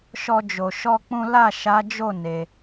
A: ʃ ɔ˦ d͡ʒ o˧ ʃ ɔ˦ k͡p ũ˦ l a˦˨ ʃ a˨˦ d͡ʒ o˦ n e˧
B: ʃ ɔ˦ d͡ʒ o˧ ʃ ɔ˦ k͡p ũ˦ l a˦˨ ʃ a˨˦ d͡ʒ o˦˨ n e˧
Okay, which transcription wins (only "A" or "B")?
B